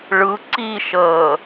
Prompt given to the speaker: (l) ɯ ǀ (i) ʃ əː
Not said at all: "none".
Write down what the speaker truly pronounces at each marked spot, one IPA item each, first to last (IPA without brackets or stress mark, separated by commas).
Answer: ɭ, i